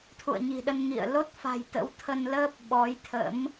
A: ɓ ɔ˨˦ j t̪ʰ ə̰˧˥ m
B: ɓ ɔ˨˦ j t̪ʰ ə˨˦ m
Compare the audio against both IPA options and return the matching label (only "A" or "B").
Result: A